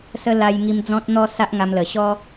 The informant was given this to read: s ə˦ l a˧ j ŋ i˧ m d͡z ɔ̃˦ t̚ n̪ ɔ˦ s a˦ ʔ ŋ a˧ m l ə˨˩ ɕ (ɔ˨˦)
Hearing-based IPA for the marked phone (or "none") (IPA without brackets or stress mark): ɔ˦